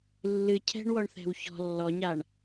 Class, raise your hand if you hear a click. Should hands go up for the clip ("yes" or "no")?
no